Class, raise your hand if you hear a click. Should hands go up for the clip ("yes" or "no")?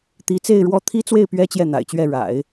no